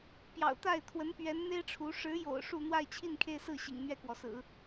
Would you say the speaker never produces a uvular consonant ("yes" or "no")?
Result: yes